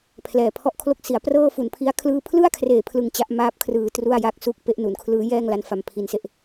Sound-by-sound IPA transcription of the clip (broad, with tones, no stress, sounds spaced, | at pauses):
pʰ l ɛː˨˩ pʰ ɔ˥˩ ʔ kʰ l o˥˩ k̚ s i˩˦ a̯ p r ɤː˥˩ f u˨˩ n pʰ i˦˥ a̯ kʰ l ɯː˥˩ pʰ l ɯ˥˩ a̯ kʰ r eː˨˩ pʰ l ɯ˨˩ ŋ t͡ɕ a˦˥ ʔ m aː˦˥ p̚ kʰ r ɯː˧ t r u˥˩ a̯ j a˥˩ k̚ s u˥˩ k̚ p e˦˥ ʔ n u˩˦ n kʰ l ɯː˦˥ j ɛː˥˩ ŋ l a˦˥ n f a˨˩ m pʰ i˧ n s e˦˥ ʔ